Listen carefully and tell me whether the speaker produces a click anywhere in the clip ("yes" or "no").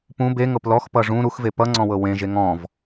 yes